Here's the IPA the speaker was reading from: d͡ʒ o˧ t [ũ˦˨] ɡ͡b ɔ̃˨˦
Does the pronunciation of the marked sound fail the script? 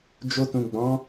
yes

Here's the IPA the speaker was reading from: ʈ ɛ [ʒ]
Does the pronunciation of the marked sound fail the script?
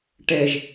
no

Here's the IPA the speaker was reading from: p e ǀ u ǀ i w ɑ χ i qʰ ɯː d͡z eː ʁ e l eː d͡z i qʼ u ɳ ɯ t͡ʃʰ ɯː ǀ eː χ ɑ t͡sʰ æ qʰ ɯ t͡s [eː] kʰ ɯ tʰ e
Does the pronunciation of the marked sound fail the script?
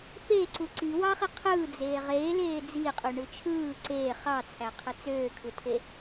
yes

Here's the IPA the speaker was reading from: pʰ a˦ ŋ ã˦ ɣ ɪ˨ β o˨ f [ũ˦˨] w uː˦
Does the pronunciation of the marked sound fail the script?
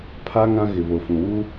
yes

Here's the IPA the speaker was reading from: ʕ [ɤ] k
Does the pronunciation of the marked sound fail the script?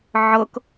no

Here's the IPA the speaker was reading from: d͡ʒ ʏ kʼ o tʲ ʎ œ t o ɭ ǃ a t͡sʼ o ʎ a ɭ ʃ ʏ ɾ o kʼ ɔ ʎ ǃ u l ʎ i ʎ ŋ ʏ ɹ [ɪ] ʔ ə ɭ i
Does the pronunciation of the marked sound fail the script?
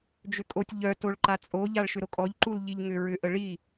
yes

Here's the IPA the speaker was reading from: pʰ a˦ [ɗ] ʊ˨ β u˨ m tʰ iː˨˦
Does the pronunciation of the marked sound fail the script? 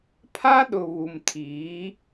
no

